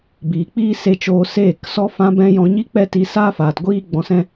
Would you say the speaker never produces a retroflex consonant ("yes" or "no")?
yes